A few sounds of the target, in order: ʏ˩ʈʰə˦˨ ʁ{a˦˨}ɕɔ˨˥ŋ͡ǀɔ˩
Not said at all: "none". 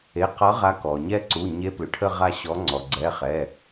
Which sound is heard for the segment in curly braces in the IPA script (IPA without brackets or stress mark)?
a˦˨